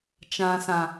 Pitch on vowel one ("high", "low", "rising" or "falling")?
low